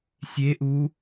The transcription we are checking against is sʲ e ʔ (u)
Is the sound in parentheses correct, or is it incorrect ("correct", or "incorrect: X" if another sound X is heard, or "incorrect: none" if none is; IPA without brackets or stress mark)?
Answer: correct